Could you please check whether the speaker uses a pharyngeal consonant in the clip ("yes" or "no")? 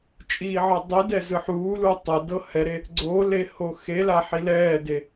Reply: yes